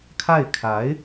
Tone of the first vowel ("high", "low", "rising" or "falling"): falling